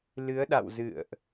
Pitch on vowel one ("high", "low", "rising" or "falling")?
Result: rising